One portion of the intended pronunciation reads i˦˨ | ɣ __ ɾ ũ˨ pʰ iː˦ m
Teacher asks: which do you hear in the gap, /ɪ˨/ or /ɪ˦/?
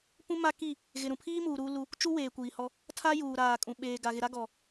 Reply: ɪ˨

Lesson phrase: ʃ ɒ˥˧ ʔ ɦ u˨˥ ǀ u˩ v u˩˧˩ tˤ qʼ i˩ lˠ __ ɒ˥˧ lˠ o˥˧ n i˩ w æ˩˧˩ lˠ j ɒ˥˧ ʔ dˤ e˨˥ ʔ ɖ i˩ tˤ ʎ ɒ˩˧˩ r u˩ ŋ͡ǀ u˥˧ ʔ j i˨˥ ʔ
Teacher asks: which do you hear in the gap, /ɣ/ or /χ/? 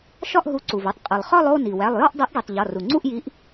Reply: χ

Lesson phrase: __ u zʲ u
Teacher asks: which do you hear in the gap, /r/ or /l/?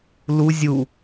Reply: l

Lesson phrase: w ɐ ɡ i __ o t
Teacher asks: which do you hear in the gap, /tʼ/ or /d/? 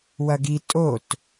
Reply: tʼ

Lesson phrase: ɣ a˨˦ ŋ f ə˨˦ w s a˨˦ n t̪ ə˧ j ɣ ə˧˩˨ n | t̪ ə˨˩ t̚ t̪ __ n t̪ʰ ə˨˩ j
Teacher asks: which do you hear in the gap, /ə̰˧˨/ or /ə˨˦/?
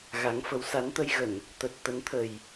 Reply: ə˨˦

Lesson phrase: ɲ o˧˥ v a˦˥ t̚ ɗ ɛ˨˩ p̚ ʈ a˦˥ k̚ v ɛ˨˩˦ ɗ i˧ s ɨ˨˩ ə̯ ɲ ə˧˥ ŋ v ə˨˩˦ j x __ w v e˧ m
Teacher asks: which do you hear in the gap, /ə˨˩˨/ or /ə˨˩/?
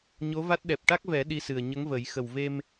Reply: ə˨˩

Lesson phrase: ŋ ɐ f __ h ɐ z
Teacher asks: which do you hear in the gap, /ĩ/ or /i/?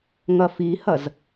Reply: i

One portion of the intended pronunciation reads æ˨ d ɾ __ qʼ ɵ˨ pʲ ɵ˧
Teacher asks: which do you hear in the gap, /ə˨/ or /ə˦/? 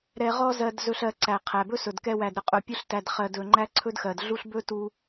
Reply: ə˨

